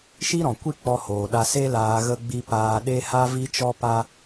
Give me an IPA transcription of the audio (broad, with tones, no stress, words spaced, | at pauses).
ʃi˦ɾɔ̃˨kʷi˦ k͡pɔ˧hoː˨ɗa˧ se˦laː˧ ɣə˦ɡ͡bi˦ paː˧ɗe˦ ha˦vi˦t͡ʃɔ˦pa˦